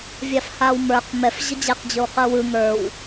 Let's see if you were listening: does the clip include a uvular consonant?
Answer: yes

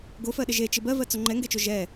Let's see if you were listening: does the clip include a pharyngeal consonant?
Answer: no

